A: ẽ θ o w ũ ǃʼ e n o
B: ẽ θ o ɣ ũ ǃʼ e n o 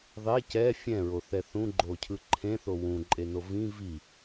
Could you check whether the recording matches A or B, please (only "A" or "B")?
A